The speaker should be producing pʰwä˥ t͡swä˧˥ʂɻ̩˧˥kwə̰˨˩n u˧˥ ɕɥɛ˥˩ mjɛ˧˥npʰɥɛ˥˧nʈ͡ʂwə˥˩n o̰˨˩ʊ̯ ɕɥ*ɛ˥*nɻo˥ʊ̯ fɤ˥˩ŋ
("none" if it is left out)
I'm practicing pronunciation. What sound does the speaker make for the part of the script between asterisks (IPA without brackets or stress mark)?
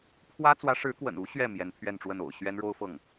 ɛ˥